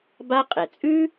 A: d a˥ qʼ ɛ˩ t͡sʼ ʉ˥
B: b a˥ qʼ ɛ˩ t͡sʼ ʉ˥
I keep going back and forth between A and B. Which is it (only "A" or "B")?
B